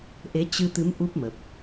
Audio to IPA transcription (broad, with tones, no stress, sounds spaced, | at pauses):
ʔ e˨˦ t͡ɕ ɨ˧ t̪ ɨ˨˦ m ʔ u˦˥ p̚ m ə˨˩ p̚